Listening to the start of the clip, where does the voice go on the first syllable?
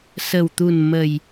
low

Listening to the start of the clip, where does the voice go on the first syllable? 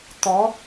rising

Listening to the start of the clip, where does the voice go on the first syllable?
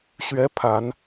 rising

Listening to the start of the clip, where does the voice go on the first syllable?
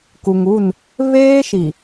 low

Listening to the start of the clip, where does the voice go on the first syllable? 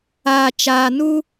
low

